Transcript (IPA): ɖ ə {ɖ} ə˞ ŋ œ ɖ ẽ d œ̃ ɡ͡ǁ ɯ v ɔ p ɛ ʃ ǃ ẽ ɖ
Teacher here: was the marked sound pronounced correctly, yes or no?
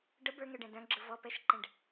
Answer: no